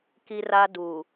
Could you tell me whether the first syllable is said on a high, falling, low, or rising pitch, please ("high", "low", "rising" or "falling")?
high